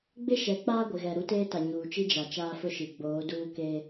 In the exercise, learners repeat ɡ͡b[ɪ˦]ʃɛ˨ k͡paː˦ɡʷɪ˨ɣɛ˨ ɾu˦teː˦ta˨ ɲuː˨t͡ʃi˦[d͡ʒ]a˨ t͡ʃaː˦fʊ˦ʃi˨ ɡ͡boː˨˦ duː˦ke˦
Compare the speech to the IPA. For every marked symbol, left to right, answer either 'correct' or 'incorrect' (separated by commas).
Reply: correct, correct